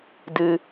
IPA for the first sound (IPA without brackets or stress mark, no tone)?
d